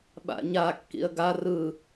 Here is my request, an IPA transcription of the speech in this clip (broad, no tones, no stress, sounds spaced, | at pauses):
ɓ a̰ ɲ a kː ḭ ə̯ ɡ a r ɯ